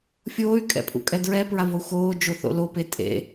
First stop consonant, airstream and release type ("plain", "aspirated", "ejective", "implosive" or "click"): ejective